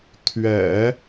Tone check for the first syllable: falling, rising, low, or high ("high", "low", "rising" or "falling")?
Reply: low